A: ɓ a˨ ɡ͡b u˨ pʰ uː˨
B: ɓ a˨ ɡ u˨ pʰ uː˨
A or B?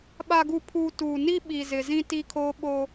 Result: B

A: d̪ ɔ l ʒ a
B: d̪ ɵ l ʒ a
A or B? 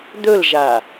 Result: B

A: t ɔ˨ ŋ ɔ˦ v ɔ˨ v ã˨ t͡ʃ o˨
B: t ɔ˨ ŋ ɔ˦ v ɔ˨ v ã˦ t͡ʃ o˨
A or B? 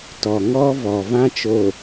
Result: B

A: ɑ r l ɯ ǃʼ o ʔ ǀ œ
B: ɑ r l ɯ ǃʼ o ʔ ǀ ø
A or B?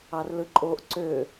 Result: B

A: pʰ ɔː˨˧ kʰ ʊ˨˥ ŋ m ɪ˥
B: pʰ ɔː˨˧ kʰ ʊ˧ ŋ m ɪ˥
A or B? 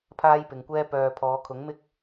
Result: A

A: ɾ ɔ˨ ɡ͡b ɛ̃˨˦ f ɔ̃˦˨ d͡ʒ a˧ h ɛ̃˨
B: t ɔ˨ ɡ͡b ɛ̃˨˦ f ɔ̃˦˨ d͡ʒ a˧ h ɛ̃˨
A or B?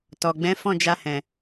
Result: B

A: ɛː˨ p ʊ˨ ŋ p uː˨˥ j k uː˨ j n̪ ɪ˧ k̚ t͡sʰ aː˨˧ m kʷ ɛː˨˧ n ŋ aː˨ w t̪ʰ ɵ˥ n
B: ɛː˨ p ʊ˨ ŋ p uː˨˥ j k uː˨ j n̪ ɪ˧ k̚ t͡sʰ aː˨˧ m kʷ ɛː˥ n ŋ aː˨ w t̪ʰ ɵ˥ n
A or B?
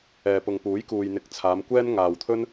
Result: B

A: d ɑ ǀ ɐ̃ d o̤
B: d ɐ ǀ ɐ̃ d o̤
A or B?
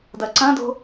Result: B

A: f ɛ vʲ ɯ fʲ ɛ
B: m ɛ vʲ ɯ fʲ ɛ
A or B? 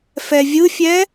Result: A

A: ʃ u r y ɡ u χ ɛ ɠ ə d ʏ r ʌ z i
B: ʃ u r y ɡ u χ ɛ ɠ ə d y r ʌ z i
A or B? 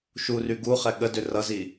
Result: A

